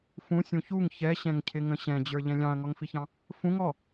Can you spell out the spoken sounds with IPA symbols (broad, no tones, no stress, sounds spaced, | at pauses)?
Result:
f ũ sʲ ũ ç u ŋ ç ɛ ɕ ɛ̃ ŋ cʰ ɪ ŋ ə̃ ɕ ɛ̃ d͡ʑ ə˞ ʎ ɛ̃ lʲ ɑ̃ ɐ̯ ŋ ɔ ŋ f i ç ɑ̃ | f ũ ŋ ɔ